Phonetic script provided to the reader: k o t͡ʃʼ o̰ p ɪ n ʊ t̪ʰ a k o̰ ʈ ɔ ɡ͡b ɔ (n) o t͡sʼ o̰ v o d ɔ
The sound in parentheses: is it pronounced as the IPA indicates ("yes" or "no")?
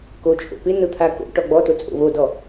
no